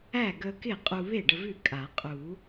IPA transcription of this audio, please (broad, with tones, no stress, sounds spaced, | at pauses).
æ˥˩ ɡ ə˧ k ɪ˥˩ qʼ u˧ β e˥˩ ɖ ə˧ v ʉ˥˩ kʼ a˨˩˦ qʼ u˨˩˦